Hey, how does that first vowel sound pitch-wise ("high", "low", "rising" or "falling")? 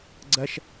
high